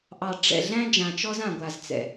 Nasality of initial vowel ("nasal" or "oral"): oral